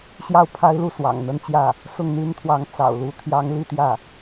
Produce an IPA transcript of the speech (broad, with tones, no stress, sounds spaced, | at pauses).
ɕ j ɑ˥˩ ʊ̯ pʰ a˥ ɪ̯ l u˥˩ s w ɑ̰˨˩ ŋ n̪ ə˥ n t͡ɕ j ä˥˩ | s ʊ˥˩ ŋ n̪ y˥ n t̪ʰ w ɑ˧˥ ŋ t͡s ɑ̰˨˩ ʊ̯ l u˧˥ t̪ʰ j ɑ˧˥ ŋ l i˥˧ t̪ j ä˥˩